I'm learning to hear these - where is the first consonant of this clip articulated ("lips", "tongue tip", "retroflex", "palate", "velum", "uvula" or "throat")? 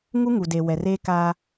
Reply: velum